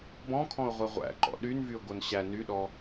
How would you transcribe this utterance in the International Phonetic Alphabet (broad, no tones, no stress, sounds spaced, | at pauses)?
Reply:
b ɔ̃ kʰ ɔ̃ ʊ̯ ʁʷ ɛ ʁʷ æ̰ ǃ ɔ̰ ɗ y n v y ʊ̯ ɡ o n ɕ æ n y ɗ ɔ